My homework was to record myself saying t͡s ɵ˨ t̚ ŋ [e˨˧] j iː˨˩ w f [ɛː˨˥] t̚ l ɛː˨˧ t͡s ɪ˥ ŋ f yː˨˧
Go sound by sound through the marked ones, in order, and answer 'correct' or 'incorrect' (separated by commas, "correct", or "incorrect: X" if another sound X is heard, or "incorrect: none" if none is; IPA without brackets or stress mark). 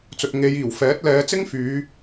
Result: correct, correct